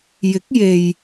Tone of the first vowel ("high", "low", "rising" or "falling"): rising